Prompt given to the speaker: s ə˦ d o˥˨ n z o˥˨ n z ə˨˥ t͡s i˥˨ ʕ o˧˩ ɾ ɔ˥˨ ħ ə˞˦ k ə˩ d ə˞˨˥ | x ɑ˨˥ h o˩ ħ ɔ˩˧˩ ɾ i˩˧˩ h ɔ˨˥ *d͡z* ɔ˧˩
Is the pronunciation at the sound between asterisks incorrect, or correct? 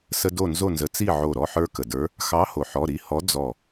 correct